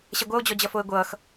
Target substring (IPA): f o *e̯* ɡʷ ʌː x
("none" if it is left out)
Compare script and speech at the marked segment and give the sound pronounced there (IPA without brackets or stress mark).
e̯